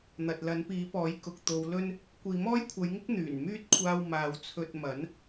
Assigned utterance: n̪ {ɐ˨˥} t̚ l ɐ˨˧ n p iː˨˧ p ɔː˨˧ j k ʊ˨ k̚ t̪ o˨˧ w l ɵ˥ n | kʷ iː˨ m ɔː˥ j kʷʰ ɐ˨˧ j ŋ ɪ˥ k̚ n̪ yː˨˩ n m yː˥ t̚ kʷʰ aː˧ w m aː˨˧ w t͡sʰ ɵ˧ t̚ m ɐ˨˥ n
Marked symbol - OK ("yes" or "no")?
no